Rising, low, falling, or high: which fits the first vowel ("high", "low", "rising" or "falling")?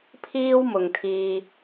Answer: high